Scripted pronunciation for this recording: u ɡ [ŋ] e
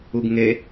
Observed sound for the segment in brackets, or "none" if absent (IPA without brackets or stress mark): ŋ